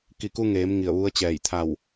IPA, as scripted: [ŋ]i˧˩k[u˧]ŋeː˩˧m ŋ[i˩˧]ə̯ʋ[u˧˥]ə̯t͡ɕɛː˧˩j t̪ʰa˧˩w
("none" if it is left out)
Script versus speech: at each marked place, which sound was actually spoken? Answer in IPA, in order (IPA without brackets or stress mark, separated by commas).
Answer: k, u˧, i˧˩, u˧˥